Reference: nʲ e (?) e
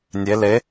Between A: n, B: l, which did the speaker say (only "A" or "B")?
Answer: B